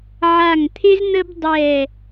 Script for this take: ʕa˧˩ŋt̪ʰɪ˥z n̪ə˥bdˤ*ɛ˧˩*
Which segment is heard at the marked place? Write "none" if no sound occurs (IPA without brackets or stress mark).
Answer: ɛ˧˩